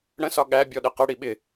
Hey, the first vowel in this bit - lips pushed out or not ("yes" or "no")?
no